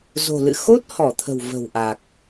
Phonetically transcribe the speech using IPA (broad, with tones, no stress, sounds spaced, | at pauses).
z o̤˨˩ l ɨ̰˧˨ x o˦˥ t̚ h ɔ˧˩ t̪ʰ ə̤˨˩ w v ə̤˨˩ w ʔ a˨˩ k̚